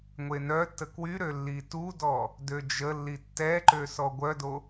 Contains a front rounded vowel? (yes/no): yes